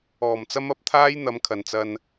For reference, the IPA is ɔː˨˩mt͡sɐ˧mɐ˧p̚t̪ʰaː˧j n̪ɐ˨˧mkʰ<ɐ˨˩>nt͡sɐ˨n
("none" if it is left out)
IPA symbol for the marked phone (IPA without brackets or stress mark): ɐ˨˩